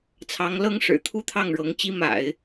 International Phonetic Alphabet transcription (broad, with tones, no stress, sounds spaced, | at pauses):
t͡sʰ ɑ˧˥ ŋ l ɤ˥ ŋ ʂ ɻ̩˨˩ t̪ʰ u˥˧ t̪ʰ ɑ˥˩ ŋ ɻ ɤ˧˥ ŋ t͡ɕ i˥ m a̰˨˩˦ ɪ̯